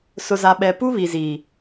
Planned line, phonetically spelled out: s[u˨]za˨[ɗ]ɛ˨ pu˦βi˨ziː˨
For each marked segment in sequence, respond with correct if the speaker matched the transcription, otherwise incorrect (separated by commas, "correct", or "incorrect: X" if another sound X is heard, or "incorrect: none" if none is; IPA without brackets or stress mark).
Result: incorrect: ʊ˨, incorrect: ɓ